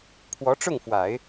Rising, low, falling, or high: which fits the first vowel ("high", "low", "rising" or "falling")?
rising